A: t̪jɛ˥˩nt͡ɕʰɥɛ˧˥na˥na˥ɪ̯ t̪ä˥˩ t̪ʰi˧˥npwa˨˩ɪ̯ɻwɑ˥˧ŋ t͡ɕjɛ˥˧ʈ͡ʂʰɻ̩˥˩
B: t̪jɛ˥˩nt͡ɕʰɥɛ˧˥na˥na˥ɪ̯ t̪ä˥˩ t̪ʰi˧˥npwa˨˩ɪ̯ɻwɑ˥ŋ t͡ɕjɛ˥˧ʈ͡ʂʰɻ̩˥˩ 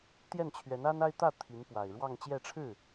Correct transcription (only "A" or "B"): A